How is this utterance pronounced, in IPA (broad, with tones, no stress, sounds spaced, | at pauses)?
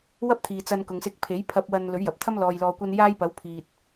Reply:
w ɐ˥ p̚ t̪ʰ iː˨ t͡s ɐ˧ n k ʊ˨ ŋ s ɪ˧ k̚ pʰ e˨˥ j pʰ ɐ˧ p̚ w ɐ˧ n l ɵ˨˥ ɥ j ɐ˨ p̚ t̪ʰ ɐ˥ m l ɔː˨ j l ɔː˨ kʷ ɐ˧ n j aː˥ j p ɐ˨˥ w pʰ iː˨ t̚